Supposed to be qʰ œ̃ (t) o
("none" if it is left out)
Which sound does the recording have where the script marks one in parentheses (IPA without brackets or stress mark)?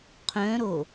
ɾ